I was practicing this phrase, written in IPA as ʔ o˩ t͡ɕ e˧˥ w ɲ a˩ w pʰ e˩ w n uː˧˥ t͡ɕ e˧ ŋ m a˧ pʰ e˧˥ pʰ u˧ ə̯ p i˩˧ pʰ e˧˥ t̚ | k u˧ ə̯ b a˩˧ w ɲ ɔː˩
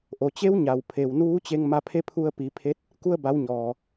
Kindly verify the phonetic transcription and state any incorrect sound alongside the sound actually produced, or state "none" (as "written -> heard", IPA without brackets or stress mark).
none